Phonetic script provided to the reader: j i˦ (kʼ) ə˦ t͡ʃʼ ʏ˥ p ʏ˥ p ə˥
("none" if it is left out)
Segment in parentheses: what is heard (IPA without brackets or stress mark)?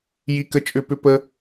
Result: k